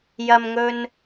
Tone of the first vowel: low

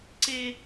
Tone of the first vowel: high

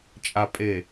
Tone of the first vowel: low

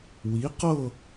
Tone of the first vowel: rising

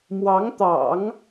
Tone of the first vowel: rising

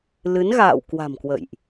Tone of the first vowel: rising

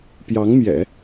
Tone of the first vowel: rising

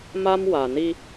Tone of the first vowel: high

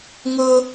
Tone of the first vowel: high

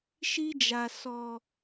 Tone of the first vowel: high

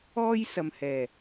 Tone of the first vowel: high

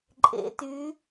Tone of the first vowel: rising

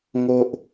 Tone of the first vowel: low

